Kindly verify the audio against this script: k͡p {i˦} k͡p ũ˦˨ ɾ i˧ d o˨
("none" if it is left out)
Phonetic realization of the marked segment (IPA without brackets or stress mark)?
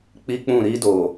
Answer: i˦